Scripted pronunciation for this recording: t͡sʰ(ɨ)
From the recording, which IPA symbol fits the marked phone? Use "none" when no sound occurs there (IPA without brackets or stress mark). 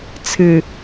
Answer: ɨ